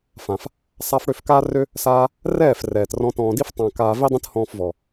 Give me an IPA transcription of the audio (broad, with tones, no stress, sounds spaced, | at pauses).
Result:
f ã˨ f | sˤ a˧ f ɽ ø˦˨ f k aː˦ r ø˦ | s aː˧ | r ɛː˦˨ f r ɛː˨ t r ɔ̃˦ t ɔ̃ː˧ d i˦ f tˤ ã˧ k aː˧ v i˦ dˤ ĩ˦ t h ɔ̃ː˧ f v ɔ˨